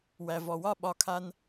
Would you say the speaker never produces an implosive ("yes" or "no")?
no